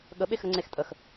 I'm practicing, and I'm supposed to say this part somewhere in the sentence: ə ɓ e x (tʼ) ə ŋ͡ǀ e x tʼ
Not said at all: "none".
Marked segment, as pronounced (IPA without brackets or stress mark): ɾ